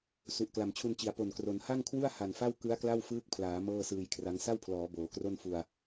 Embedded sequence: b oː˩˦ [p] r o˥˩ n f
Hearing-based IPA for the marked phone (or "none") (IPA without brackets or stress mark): k